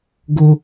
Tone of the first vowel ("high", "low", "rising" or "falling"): high